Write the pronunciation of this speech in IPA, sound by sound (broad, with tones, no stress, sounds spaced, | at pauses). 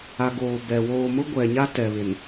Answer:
a˨ ɡ oː˨ b ɛ˨ w oː˨ m ʊ˦ ɡʷ ɛ˨ ɲ a˦ t ɛ˨ β ɪ˨ n